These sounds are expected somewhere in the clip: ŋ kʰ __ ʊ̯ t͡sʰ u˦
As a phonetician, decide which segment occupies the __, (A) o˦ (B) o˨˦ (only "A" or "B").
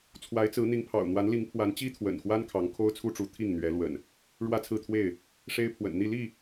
A